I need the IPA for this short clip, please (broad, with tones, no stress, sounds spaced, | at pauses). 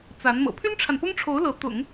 t͡s a˧˥ n m ɤ̰˨˩ pʰ y˥ n ʈ͡ʂʰ a˨ n p ʊ˥ ŋ ʈ͡ʂʰ o˧˥ ʊ̯ l ɤ˧˥ t̪ ʊ̰˨˩˦ ŋ